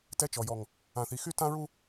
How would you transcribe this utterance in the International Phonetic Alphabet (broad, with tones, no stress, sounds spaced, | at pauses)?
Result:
t ɛ˦ t͡ʃ ɔ˨ j ɔ˨ ŋ | ã˨ θ i˨ x y˦ t ã˦ ɹ u˦